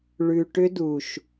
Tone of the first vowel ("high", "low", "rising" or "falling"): low